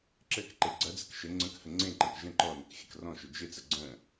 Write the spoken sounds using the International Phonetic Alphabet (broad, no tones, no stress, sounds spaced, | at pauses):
ǁ ɘ k ǃ e ɡ͡ǀ ɐ d͡z ɪ k ʃ ɘ ŋ͡ǀ ə̃ k h ə ŋ͡ǀ ẽ ǃ ɐ̃ k ʒ ə̃ ǃ ɔ n ɘ k xʲ ɘ k r ɔ̃ ʃ ʏ d͡ʒ ɪ t͡s ə ɡ͡ǀ ə̃